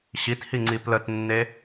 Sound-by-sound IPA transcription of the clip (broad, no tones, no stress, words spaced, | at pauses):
ɕithiŋ͡ǀi plətnːe